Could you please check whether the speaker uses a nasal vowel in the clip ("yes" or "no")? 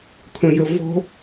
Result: yes